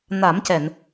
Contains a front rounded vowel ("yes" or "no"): no